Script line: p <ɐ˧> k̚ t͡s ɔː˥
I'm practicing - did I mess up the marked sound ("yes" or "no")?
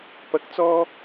no